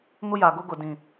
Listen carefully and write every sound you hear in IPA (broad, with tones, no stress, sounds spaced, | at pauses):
ŋ ʊ˦ j a˨ ɡ ʊ˦ ɡ ʊ˨ d ĩ˨